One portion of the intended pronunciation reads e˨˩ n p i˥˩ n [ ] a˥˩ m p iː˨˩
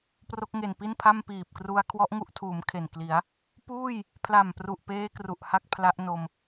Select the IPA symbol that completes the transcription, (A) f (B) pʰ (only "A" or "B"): B